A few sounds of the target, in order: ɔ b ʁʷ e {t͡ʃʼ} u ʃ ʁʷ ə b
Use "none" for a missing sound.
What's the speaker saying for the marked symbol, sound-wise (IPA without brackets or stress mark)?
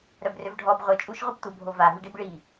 t͡ʃʼ